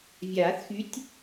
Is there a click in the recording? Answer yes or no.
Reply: no